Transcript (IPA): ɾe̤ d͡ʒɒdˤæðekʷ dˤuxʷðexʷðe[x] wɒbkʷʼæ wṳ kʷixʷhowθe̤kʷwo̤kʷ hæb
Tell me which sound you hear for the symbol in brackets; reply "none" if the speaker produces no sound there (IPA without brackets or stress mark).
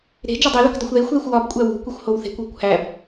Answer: xʷ